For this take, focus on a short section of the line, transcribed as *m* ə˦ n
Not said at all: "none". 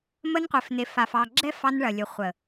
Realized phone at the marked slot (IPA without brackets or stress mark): m